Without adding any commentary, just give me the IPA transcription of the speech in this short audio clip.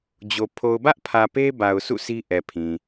d͡ʑ o˨ pʰ o˨ ʊ̯ b ä˦ ʔ pʰ ä˨ p e˦ b a˨ ʊ̯ s ṵ˦˨ sʰ i˦ ʔ ɛ˨ pʰ ĩ˨

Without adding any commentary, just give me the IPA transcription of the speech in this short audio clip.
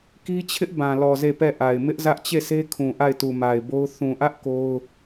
k i˦ t͡ɕʰ ɪ˦ ʔ b ã˨ l ɔ˨ z e˦˨ p ɛ˦˨ ʔ a˨ ɪ̯ m ɪ˦ ʔ z ä˦ ʔ t͡ɕ e˦˨ sʰ e˦ kʰ ũ˨ ʔ a˦˨ ɪ̯ t u˨ m a˨ ɪ̯ b o˦ ʊ̯ θ ũ˨ ʔ ä˦ ʔ k o˦ ʊ̯

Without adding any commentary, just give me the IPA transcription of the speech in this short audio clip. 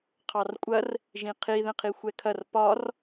qʰ ɑ r kʷʼ ɐ r | ʒ ĩ qʰ i ð ɛ̃ qʰ i xʷ ɛ kʰ ɐ r p ɒ r

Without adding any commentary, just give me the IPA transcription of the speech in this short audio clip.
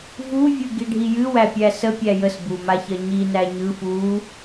v u vʲ ɯ ɡ i ɖʱ i j ɨ w æ pʲ æ s ə pʲ æ j ə s b u m a ç ɜ ɲ i n æ ɲ ɯ f u

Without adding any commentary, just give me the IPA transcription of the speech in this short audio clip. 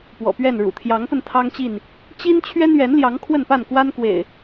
p w ɔ̰˨˩ p ɥ ɛ˥˨ n ɻ ṵ˨˩ t̪ʰ j ɑ˨˦ ŋ p ə˧ n t̪ʰ ɑ˦ ŋ t͡ɕ i˥˨ n | t͡ɕ i˦ n t͡ɕʰ ɥ ɛ˦ n ɥ ɛ˨˦ n l j ɑ˨˦ ŋ kʰ w ə˥˨ n p a˥˨ n k w a˦ n k w ḛ˨˩ ɪ̯

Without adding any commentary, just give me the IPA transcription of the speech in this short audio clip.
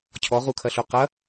cʰ ɔ ʁ u kʰ ɐ ɬ u q ɐ

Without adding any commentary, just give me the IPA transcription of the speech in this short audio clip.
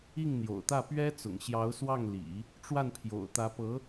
i˥˩ ŋ n̪ j o̰˨˩ ʊ̯ t̪ ä˥˩ p ɥ ɛ˥ t͡s ʊ̰˨˩ ŋ ɕ j ɑ˧˥ ʊ̯ s w ɑ˥˩ ŋ l ḭ˨˩˦ | ʈ͡ʂ w a˥˩ n pʰ j o̰˨˩ ʊ̯ t̪ ä˧˥ p ɤ˧˥

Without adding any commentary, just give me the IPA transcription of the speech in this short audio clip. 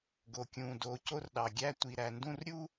ɡ o˩ kʲ ũ˩ d o˨ c o˦ r ɗ ɑ˨ ɡʲ æ˦ tʷ i˨ ɾ æ˨ n d ũ˦ r ɾʲ u˥

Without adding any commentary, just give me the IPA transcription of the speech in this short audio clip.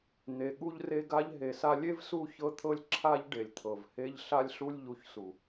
n̪ e˨ ɠ u˧ ʎ r e˧ ɡ a˧ ʎ ɦ e˨ s a˧ lʲ e˦ v s u˦˨ ç ɤ˧ t̪ʰ ɤ˧ lʲ ǁʰ a˧ ʎ ɖ e˨ lʲ t̪ʰ ɤ˨ v h e˧ ʎ ɬ a˧ lʲ ɬ u˧ lʲ ʎ u˨ ç s u˨

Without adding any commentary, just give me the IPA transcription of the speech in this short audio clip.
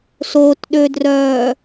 s o t ɗ ø d r œː

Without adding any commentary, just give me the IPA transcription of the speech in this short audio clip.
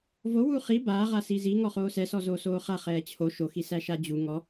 v o w u χ i b aː ʁ a s i z i ŋ ɔ χ oː s ɛ s ɔ z oː s oː χ a χ ɛː t͡ɕʰ o ʃ o x i s æ ʃ a d͡ʑ u ŋ ɔ

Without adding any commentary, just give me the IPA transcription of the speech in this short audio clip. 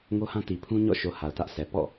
ŋ o˦ h ã˦ t i˨ pʰ ũ˦ ɲ ɔ̰˦˨ ʃ o˨ h a˨ ʊ̯ t ä˦ ʔ s ɛ˨ p ɔ̰˦˨

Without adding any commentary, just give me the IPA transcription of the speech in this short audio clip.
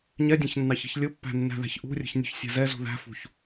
ɲ ɛ dʲ æ̃ ç nː ɑ ç i̤ ç lʲ ʊ pː æ̤ nː æ̤ ð æ̤ ç ʔ ṳ rʲ ə̤ ç nʲ ṳ ç sʲ æ̤ z ɛ z ṳ ð æ̤ f ṳ ç

